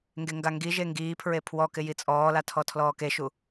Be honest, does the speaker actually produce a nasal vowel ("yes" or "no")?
no